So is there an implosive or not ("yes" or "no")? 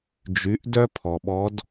yes